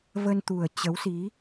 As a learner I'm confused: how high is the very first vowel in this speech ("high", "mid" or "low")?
mid